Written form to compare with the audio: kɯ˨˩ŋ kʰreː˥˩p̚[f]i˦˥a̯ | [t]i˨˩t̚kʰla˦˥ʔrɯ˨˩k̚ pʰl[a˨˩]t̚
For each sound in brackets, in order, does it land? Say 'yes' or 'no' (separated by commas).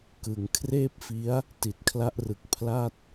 yes, yes, no